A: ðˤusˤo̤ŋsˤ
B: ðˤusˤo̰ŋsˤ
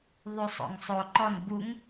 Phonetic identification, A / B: B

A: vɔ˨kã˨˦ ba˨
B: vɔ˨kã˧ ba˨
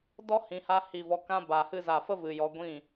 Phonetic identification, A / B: B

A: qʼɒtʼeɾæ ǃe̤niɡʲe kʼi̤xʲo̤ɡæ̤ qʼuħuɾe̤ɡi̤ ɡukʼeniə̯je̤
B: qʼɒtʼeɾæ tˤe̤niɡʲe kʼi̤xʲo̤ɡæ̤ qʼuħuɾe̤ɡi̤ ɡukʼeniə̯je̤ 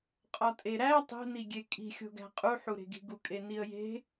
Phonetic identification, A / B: B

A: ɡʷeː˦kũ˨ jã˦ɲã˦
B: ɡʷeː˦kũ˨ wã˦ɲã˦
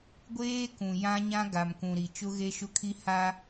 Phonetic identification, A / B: A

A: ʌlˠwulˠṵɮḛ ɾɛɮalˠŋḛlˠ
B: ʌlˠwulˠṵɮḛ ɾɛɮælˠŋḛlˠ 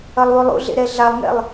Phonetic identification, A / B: A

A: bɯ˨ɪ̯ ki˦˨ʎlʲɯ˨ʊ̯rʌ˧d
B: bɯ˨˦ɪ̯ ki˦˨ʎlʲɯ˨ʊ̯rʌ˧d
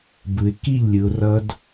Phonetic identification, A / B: A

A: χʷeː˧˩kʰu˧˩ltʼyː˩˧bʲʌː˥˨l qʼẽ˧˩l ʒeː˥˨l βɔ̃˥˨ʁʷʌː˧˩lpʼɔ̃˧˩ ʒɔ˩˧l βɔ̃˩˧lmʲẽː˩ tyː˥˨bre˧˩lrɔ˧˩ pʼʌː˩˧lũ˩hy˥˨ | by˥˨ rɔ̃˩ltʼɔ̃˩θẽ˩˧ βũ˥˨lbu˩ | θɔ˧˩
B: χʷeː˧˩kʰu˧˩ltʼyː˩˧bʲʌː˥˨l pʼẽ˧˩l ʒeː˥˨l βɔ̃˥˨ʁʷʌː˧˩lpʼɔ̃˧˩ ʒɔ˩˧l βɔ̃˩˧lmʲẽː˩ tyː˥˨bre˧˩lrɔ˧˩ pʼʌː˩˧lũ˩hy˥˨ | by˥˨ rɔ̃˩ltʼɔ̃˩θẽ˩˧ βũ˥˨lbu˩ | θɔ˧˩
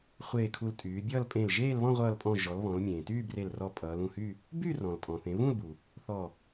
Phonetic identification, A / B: B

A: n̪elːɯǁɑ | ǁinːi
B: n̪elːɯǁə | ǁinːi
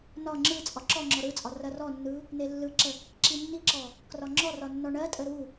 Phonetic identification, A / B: B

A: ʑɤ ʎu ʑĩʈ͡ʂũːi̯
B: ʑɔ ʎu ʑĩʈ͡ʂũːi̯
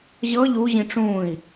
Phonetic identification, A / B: A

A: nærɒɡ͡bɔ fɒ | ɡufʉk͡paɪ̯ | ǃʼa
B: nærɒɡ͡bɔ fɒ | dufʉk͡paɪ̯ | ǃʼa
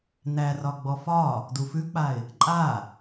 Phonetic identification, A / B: B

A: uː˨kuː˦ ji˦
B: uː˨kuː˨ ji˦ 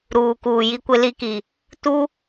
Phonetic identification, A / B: B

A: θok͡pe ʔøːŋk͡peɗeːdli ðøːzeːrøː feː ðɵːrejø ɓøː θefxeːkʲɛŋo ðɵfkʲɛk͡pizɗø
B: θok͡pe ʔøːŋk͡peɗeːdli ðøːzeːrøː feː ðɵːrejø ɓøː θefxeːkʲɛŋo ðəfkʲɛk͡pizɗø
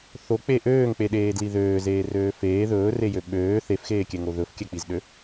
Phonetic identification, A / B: A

